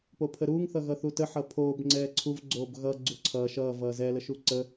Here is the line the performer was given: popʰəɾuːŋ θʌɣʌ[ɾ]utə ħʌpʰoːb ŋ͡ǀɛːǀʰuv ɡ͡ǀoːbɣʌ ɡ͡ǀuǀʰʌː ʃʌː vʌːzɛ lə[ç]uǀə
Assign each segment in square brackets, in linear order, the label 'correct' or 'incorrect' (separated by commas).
incorrect, incorrect